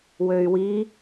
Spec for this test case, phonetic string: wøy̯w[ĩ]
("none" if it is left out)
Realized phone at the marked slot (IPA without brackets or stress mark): i